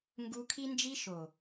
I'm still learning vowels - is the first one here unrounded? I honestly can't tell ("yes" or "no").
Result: no